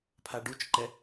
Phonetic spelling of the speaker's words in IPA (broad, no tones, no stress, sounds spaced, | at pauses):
pʰ a ɖ u t͡ʃ ǃ ɛ